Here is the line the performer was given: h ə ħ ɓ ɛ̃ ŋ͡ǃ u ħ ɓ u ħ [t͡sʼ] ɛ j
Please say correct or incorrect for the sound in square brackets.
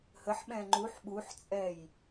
correct